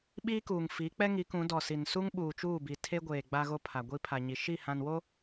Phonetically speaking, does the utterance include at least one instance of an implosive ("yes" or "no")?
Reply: yes